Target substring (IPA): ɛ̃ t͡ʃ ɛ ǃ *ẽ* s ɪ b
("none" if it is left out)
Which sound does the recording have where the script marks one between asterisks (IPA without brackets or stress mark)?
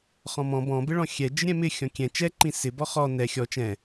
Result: ĩ